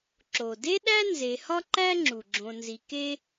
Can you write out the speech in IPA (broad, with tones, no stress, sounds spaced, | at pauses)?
ǁ o˩ d e˥ ɗ æ˥ n z e˨ h ɒ˥ ǃ æ˥ ŋ͡ǁ u˩ ɡ͡ǁ õ˨ n z i˨ k e˥